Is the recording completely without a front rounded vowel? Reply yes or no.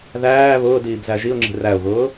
yes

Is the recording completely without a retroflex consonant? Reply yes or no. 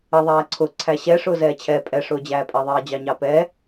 no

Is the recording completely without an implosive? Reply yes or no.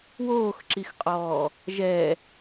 yes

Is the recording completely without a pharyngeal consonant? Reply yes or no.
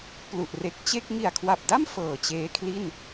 yes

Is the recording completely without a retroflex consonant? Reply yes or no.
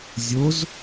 yes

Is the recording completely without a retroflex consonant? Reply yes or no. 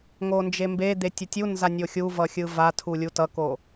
yes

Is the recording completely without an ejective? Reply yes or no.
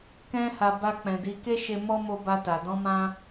yes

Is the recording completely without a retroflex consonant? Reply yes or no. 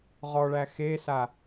no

